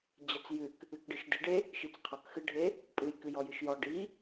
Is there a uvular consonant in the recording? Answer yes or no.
yes